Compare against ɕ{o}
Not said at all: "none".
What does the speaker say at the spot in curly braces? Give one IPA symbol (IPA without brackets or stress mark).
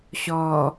ɔ